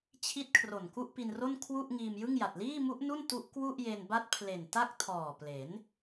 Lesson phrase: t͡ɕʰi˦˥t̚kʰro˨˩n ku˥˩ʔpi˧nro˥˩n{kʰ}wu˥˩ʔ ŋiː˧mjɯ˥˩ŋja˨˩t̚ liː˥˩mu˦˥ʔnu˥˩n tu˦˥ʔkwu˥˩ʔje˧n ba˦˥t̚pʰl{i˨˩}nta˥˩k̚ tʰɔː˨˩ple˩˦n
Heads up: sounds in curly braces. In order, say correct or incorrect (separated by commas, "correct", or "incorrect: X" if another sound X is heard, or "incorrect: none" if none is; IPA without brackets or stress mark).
correct, incorrect: e˨˩